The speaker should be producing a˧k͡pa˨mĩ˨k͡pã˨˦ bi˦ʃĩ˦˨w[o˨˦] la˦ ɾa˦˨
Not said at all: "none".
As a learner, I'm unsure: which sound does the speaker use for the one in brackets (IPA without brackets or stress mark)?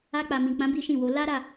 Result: o˨˦